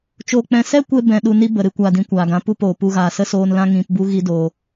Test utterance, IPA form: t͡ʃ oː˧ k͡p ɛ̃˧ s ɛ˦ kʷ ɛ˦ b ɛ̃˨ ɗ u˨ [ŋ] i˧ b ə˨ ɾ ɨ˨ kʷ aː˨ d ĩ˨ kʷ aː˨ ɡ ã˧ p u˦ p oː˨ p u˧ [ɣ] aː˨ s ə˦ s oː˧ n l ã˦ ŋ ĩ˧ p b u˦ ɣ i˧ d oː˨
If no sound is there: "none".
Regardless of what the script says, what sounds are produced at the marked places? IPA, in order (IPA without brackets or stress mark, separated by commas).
n, ɣ